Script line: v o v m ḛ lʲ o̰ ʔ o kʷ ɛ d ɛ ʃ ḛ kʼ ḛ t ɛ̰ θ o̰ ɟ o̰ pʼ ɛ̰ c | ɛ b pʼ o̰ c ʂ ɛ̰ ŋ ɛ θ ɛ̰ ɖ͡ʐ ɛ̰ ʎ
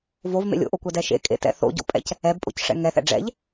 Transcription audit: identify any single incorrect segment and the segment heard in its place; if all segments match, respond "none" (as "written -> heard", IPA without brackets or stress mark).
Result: none